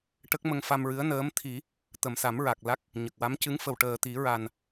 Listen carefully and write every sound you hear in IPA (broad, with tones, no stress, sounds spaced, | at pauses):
ʈ ə˦˥ k̚ m ə˧ ŋ f a˧ m ɹ ɨ˧˥ ə̯ n əː˧˥ m t̪ʰ i˨˩˦ | t̪ ə˨˩ m s a˨˩˦ m ɹ a˨˩ k̚ l a˦˥ k̚ | ɲ ə˨˩ k̚ w a˧˥ m c ɨ˧˥ ŋ f ə˨˩ w ʈ əː˨˩ t̪ i˨˩˦ ɹ a˨˩ n